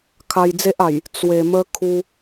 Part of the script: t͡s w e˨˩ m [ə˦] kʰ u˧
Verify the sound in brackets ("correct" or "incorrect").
incorrect